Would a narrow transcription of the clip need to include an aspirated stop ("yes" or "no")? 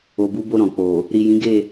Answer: no